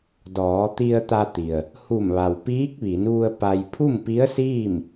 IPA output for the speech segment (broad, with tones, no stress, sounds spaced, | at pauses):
d ɔː˩˧ t̪ i˧ ə̯ t̪ a˧ t̪ i˩ ə̯ | h u˧˩ m ʋ a˩ w p iː˧˥ k̚ ʋ i˩˧ n ʋ u˧ ə̯ p a˧ j pʰ u˥˨ m p i˧˥ ə̯ s iː˥˨ m